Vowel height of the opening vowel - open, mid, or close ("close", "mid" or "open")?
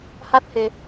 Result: open